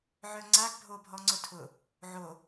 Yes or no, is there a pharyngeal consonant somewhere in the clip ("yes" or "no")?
yes